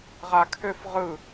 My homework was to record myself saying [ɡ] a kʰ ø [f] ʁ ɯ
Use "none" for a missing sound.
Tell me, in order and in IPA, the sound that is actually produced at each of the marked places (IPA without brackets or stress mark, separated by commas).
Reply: ʁ, f